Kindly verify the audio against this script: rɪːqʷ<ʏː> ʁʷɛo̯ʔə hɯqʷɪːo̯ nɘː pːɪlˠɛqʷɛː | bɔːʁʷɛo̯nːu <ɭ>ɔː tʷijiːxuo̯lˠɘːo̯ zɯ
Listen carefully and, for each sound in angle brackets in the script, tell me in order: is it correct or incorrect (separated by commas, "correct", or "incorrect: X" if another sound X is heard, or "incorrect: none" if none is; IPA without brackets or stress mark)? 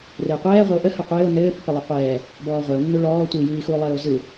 incorrect: ɛː, correct